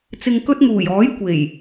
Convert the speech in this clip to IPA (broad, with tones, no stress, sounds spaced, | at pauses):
t͡s ɪ˨ ŋ k ɵ˧ t̚ ŋ uː˨˩ j ɔː˨˥ j kʷ e˨˩ j